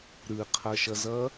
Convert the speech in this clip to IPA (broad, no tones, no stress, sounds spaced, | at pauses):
ɾ ɯ qʰ ʌ ʃ ʌ z ʌ